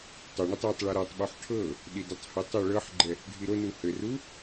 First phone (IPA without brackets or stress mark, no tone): tˤ